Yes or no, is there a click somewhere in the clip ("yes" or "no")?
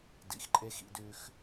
yes